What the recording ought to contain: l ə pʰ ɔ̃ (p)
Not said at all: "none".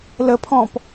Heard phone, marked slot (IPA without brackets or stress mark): p